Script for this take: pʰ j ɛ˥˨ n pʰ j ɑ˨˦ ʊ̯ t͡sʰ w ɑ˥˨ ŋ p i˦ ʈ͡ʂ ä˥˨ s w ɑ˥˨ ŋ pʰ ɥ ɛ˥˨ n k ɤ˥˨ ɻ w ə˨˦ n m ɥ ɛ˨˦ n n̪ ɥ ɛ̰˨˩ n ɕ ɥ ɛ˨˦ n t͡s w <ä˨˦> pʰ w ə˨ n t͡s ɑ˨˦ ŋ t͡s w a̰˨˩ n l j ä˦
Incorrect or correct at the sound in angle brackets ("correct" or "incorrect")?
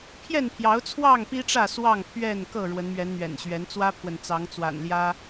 incorrect